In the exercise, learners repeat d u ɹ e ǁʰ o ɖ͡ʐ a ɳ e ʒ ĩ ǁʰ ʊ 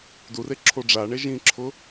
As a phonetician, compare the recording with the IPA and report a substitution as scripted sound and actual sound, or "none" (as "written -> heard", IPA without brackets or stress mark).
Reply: ɹ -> r